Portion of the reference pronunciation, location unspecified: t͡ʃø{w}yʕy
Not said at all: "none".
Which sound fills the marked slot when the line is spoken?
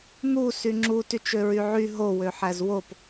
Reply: ɹ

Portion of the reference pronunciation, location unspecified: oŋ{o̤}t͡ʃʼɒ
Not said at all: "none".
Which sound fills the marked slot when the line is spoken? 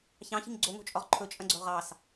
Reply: o̤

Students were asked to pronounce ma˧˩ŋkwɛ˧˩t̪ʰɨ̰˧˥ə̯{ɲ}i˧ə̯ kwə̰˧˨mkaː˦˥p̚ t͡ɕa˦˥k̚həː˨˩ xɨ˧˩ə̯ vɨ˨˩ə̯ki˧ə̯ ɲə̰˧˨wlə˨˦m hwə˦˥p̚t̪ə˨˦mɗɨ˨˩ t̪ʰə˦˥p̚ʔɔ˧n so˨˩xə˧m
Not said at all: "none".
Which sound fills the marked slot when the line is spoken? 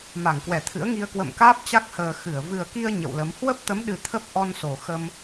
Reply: ŋ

